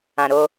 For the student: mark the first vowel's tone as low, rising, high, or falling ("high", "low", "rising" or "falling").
low